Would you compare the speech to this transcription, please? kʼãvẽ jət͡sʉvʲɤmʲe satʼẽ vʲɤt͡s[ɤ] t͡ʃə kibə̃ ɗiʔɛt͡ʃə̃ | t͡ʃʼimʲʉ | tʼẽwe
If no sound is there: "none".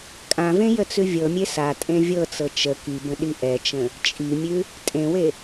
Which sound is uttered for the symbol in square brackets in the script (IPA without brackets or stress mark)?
ɤ